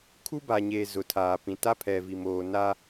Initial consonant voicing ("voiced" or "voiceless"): voiceless